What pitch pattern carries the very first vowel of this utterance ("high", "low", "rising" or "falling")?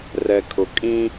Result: low